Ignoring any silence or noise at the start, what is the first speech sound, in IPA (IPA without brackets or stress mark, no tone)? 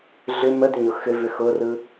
ɮ